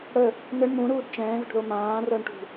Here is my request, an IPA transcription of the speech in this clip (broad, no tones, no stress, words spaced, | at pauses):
ɽə | nɘɳ mũɾuːd t͡ʃɛ̃ːðə̤ɖðo mãːrɤɳʈṳ